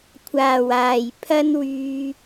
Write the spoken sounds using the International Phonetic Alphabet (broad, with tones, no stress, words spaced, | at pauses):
kʷʰaː˨˩waː˨˩j pʰɐ˥nwyː˧